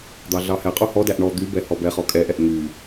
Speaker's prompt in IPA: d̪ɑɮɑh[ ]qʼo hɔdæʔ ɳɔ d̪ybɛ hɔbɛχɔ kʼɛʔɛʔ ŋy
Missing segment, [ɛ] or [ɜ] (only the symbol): ɛ